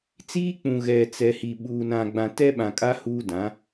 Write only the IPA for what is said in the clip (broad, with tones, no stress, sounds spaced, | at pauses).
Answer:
t͡s iː˦ k͡p ũ˨ ɣ ɛ˨ t͡s ɛ˨ h i˨ ɓ uː˨ n ã˨ ɡ͡b ã˨ t ɛ˦ ɓ ã˨ kʼ a˦ h uː˦ d ã˨˦